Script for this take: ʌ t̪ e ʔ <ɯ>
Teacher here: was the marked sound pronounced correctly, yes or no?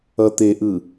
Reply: yes